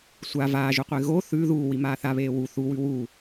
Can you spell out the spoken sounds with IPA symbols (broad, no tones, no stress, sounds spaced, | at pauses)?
sʷ a v aː ʒ u qʷ e ɣ o θ ʉː ð uː w i m aː θ a β eː w u θ u w ʉ w uː